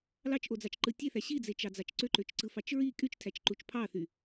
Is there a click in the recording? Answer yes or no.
yes